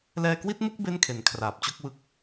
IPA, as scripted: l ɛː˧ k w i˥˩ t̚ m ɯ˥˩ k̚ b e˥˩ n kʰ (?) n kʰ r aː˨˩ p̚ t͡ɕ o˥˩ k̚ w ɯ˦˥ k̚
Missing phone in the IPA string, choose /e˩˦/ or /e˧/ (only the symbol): e˩˦